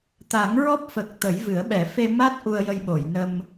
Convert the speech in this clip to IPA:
t̪ a˨˩˦ ŋ ɹ ɔ˦˥ p̚ f ə˨˩ k̚ t̪ ə˨˩˦ j v ɨ˨˩˦ ə̯ ɓ ɛ˨˩˦ f e˧ m a˦˥ t̚ ʔ u˧ ə̯ j ə˧ j ɓ o˨˩˨ j n ə˧ m

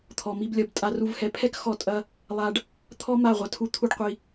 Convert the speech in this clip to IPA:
t̪ʰ ɔ˨ m i˧ b lʲ ɐ˧ b tʼ a˧ r u˧ v h ɛ˧ pʰ ɛ˦ k x ɔ˧ tʼ ɐ˧ | lˠ a˧ ɖ | t̪ʰ ɔ˦ m a˦˨ ʁʷ ɐ˧ tʰ u˧ t̪ʰ u˦ ɖ qʷ i˧

